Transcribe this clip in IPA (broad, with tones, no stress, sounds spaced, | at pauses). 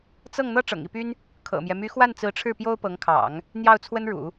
t͡s ɤ˥˩ ŋ n̪ ɤ˥ ʈ͡ʂ ɤ̰˨˩ ŋ i˥˩ p y˥ n | kʰ ɤ̰˨˩ m j ɛ˦ m y˧˥ x w a˥˩ n t͡s ɹ̩˧˥ ʈ͡ʂʰ ɻ̩˥˩ p j o˥ ʊ̯ p ɤ˧˥ ŋ kʰ ɑ̰˨˩˦ ŋ | n̪ j ɑ˥˩ ʊ̯ t͡sʰ w ə˥ n ɻ ṵ˨˩˦